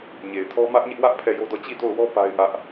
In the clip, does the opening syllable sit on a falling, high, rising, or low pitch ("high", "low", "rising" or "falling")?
low